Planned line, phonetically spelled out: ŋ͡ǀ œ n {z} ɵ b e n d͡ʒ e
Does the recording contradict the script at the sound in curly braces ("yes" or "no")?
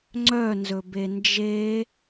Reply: no